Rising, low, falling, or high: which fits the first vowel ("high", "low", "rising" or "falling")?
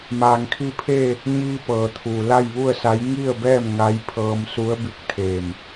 low